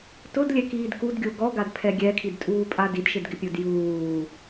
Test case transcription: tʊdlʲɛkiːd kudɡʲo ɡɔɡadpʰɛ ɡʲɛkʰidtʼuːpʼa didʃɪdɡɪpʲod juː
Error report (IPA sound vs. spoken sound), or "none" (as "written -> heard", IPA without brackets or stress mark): none